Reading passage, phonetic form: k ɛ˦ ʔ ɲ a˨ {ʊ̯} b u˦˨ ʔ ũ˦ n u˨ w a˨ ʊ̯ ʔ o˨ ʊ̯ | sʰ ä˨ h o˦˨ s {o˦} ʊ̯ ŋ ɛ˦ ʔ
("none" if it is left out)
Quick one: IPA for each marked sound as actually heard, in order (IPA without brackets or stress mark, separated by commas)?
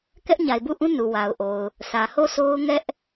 ɪ̯, o˦